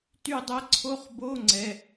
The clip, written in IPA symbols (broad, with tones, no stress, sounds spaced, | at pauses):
t y˥˩ dˤ ɛ˥ ǀʰ o˧˥˧ χ b o˧˥˧ ŋ͡ǀ ɛ˩˧˩